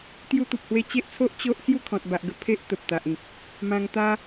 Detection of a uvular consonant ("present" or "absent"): absent